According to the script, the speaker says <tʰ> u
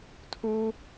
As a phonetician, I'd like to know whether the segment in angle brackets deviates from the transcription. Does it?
no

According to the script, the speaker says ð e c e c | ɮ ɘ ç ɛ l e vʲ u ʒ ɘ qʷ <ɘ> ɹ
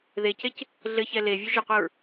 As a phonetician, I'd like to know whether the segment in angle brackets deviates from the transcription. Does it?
yes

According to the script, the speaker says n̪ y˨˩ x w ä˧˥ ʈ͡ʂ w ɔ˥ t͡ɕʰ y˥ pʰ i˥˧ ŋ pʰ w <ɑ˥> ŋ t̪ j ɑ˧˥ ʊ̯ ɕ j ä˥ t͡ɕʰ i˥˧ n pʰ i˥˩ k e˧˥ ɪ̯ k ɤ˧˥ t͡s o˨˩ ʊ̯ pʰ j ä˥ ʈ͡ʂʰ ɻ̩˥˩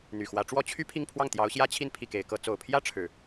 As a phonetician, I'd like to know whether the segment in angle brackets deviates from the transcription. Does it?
yes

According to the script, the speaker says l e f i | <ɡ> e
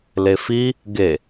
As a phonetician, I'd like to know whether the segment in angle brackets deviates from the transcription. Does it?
no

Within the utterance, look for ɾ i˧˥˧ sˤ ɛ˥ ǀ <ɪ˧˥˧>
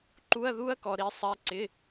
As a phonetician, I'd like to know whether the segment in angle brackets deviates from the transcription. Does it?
no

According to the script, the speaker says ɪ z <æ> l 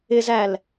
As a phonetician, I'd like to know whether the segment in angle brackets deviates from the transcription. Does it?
no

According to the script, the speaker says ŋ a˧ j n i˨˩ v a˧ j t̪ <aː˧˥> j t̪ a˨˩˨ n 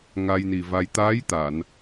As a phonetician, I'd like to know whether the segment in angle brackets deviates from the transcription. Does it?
no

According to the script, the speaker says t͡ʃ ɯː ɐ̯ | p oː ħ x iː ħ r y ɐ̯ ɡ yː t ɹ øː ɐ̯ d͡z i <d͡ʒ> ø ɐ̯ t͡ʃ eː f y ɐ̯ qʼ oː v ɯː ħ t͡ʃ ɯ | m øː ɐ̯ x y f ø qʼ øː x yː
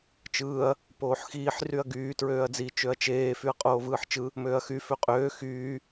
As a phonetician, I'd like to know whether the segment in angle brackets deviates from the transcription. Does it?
yes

